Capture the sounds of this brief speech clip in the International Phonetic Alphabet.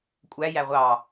kʷʼæjæ ʁʷɑ

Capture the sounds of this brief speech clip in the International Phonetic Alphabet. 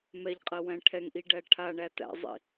mɛʎqʼɜ wæ̃ʈʰɛŋʔiɖæ ʈʰaɳæ tæ̰zˤḭ

